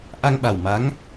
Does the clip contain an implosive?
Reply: yes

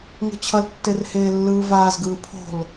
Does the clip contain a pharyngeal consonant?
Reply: no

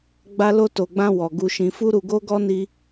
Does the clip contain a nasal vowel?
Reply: yes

